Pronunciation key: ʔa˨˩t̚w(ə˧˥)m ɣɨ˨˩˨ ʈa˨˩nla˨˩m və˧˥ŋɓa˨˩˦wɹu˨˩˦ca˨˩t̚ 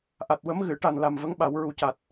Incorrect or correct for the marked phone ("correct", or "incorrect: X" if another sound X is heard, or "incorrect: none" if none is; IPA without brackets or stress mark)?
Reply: correct